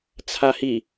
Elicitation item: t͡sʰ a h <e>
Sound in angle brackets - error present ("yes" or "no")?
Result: yes